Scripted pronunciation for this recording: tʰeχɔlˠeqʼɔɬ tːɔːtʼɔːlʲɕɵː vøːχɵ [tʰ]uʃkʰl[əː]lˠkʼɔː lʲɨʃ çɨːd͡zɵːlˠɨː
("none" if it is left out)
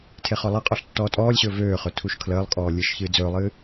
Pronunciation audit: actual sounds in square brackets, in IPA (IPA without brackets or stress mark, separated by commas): tʰ, əː